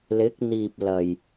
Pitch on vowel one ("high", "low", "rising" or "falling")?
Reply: rising